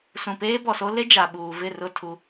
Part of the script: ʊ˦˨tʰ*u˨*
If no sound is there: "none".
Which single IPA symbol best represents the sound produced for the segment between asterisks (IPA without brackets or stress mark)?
u˨